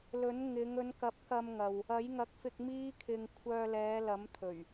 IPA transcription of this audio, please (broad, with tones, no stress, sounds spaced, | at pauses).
l ɵ˨˥ n ŋ ɪ˨˧ ŋ ɵ˨˧ n k ɐ˨˥ p̚ k ɐ˧ m ŋ ɐ˨ w | ɐ˨˥ j ŋ ɐ˨˥ k̚ f ɪ˧ k̚ m iː˥ kʰ ɪ˧ ŋ kʷʰ œː˧ l ɛː˨˧ l ɐ˨˥ m t̪ʰ ɵ˨˩ ɥ